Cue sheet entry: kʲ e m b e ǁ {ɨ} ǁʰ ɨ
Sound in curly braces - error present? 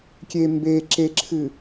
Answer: yes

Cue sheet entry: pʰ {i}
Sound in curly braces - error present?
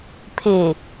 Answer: yes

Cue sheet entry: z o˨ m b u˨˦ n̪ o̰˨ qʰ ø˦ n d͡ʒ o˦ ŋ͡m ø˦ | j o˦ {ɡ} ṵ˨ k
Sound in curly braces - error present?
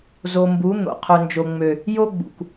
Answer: yes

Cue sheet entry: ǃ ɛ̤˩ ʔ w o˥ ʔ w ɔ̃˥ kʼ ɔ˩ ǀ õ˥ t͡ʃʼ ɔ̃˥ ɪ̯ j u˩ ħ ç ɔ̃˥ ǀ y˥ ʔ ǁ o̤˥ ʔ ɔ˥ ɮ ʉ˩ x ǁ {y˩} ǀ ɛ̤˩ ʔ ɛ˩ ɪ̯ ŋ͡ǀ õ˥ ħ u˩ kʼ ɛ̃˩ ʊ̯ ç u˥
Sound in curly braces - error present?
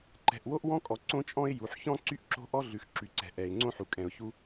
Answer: no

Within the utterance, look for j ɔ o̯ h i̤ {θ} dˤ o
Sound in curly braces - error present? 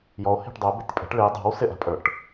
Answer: yes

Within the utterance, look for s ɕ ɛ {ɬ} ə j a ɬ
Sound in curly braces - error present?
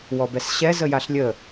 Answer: yes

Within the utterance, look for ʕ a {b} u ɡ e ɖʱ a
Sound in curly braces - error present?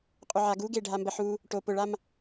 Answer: yes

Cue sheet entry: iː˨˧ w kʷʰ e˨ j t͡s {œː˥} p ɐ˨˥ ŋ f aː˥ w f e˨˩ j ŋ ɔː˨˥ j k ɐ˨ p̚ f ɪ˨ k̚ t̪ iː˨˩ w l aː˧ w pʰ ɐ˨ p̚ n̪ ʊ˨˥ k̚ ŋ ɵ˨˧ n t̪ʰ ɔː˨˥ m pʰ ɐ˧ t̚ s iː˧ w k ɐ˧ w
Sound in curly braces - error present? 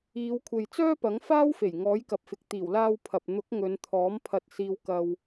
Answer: no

